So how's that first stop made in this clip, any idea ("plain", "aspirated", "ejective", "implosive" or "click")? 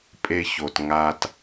ejective